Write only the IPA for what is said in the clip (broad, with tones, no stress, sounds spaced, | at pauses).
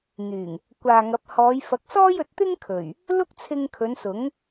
n̪ yː˨˩ ŋ | kʷ aː˨ ŋ ɐ˨˥ p̚ h ɔː˨˧ j f ɐ˨˥ k̚ s ɔː˥ j ɵ˧ t̚ t̪ ɪ˥ ŋ kʰ ɵ˨˩ ɥ | l ʊ˥ k̚ t͡sʰ ɪ˧ ŋ kʰ ɵ˨˧ n s ʊ˨˥ ŋ